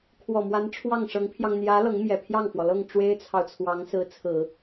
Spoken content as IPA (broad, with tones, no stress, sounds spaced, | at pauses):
kʰ w ɔ˨˩ m w a˧˥ n ʈ͡ʂʰ w ɑ˥˩ ŋ ʂ ɤ˧˥ ŋ pʰ j ɑ˧ ŋ n̪ j ä˧˥ l ɤ˧˥ ŋ m j ɛ˨˩ pʰ j ɑ˥˩ ŋ f w ɔ˩ l ɤ˥˩ ŋ ʈ͡ʂ w e˥ ɪ̯ t͡sʰ ɑ˨ ʊ̯ t͡sʰ w ɑ˧˥ ŋ s ɹ̩˧˥ t͡sʰ ɹ̩˨˩˦